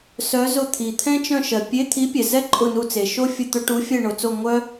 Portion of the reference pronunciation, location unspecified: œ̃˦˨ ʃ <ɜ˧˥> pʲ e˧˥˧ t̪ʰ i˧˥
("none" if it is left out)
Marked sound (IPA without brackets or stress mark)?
ɜ˩